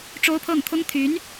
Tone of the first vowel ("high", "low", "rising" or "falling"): high